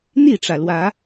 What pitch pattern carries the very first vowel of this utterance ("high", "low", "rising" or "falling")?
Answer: falling